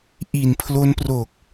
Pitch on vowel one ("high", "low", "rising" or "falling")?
low